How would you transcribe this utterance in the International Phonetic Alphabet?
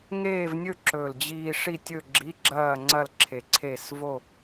ŋeː˥˧vnʲɵ˥˧ ǁɵ˨˩ld͡ʑiː˧ ʂi˥˧tʲɵ˥˧ ɡ͡ǁi˧˥˧ɡ͡ǁɐː˥˧ŋ͡ǀɐ˥˧l ǁʰe˧ǀʰe˥˧s vo˥˧

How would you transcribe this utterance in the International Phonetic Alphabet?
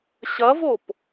ɕɐvop

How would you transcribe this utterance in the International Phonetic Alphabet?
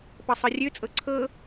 pɤsˤɤrʲøt͡sʼɤ ǀʰɤ

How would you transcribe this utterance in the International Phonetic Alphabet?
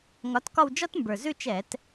ŋɒ˨˥tkɒ˥˧w d͡ʒɒ˥tmbə˞˨˩ zʉ˥˧t͡ʃɛ˧˩˧t

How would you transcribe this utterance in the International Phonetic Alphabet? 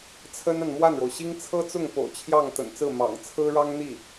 t͡sʰə˥na˨n mwa˥˩nɻo˩ʊ̯ɕi˥ŋ t͡sʰɤ˥t͡sʊ˥˩ŋ po̰˨˩ʊ̯t͡ɕʰjɑ˥˩ŋ t̪ə̰˨˩nt͡sɹ̩˥˩ mɑ̰˨˩ŋt͡sʰɹ̩˥ɻɑ˥ŋ n̪i˥˩

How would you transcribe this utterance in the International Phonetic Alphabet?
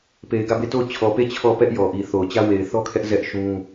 pe˨ɪ̯ɡä˦˨be˦˨to˦˨ʊ̯ t͡ɕʰɔ˨pe˦˨ t͡ɕʰɔ˦˨ pɛ˦ʔjɔ˨ ʔi˨θo˨ʊ̯t͡ɕä˦ we˨ɪ̯θɔ˦kʰɛ˦ʔ zɛ˦ʔʃũ˦

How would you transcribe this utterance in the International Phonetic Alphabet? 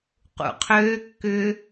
qṵqʰøː kːʏ

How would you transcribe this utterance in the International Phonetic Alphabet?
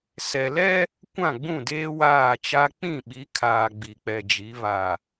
sɛ˨lɛ˦ | kʷã˦˨ɡ͡bũ˦˨deː˦ waː˦˨t͡ʃa˦ k͡pĩ˦˨ɓi˨˦kʰaː˨ ɡ͡bi˨k͡pɛ˨d͡ʒi˨˦ βa˨

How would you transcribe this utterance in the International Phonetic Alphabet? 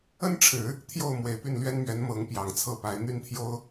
ə˥nʈ͡ʂʰɻ̩˨˩˦ | t̪ʰjo˥˩ʊ̯mwe˨˩ɪ̯ py˥˩nlɥɛ˥nmɥɛ˧˥n mɤ˧˥ŋpjɑ˨˩ŋt͡sʰɤ˥˩pa˧˥ɪ̯ n̪y˥˩nt̪ʰjo˥ʊ̯

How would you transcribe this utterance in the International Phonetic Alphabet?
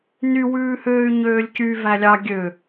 ny wʉːhøːy̯ɲøːlʲcy vælʲɑ ɡʲø

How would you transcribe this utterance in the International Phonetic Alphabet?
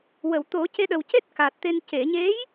wə˨˩˨wt̪o˨˩˦ ce˧ɗə˨˩wce˦˥t̚ ka˨˩t̚t̪e˧n ce˨˩˨ɲe˧˥j

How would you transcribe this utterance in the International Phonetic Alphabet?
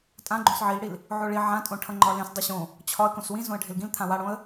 tʼã ɡ͡ǃõsʕilɽil | ʕoɭi ʕãtʼõʈʰʌ ŋ͡ǃɒlẽs dˤiɕõ | t͡ɕʰɒə̯ kõswĩ zõə̯ɖʱɪlɡĩl t̪ʰãwaɽõə̯

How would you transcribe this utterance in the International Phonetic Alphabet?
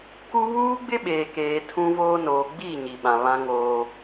ku˦ βuː˦ɡ͡bɪ˦ɓeː˨keː˨ tʰũ˦voː˦ noː˨ɡ͡biː˦˨ ɲi˨ɓã˨βã˦ ŋoː˦

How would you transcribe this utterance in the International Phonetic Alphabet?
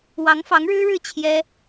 wɑ˧˥ŋfɑ˧˥ŋɻɻ̩˥ɻɻ̩˥˩ t͡ɕʰjɛ˥

